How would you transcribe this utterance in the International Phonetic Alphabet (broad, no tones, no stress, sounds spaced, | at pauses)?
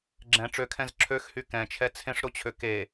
ɡ͡ǁ ɛ̃ ʈ͡ʂ ø kʰ ɛ̃ z ǁʰ ø x h y k ɛ̃ t͡ʃʰ ɛ t͡sʰ ẽ ʂ ɾ o t͡ɕʰ ø k e